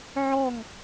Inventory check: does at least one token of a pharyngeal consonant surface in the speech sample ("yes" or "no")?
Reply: yes